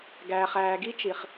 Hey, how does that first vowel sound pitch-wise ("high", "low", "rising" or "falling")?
low